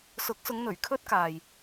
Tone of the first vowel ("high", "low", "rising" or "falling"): rising